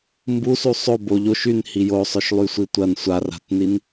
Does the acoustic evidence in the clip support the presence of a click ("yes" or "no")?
no